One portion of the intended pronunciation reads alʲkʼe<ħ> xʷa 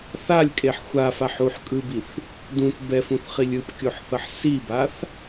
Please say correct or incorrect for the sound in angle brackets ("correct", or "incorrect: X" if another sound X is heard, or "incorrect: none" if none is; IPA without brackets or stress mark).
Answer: correct